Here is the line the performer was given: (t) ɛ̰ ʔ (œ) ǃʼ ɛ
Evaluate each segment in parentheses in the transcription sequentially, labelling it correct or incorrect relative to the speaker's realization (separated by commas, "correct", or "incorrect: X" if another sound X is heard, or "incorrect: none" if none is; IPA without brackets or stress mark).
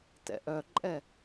correct, correct